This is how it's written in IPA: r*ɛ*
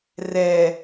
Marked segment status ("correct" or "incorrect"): correct